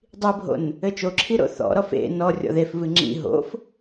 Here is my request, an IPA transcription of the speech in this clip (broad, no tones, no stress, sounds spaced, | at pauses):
dˤ i bʱ o̰ n | ɘ t͡ʃ o ǁʰ i ɾ o̰ θ ɔ̰ ɾ ɔ f ḛ n ɔ rʲ ɔ̰ ð e f v ɨ ŋ͡ǁ ḭ ɦ o̰ f